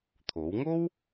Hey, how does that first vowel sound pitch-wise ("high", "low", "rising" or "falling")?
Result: rising